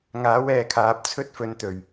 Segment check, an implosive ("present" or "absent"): absent